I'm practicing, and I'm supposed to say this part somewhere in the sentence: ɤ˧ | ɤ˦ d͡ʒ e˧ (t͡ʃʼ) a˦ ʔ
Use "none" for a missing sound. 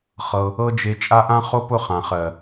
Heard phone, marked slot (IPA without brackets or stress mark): t͡ʃʼ